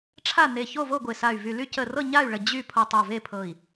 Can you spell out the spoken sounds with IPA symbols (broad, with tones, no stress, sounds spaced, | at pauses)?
ʈ͡ʂʰ a˥˨ n e˧˩ ç o˥˨ v o˥˨ ɡʷ e˧˩ s a˧˩ y̯ v y˧˩ l y˥˨ c ə˧˩ r ɤ˥˨ ɲ a˥˨ y̯ ɭ ə˧˩ d͡ʑ y˥˨ pʰ o˧˩ tˤ o˧˩ v e˥˨ pʰ ɤ˧˩ i̯